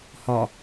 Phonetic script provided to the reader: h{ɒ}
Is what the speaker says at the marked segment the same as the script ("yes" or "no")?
yes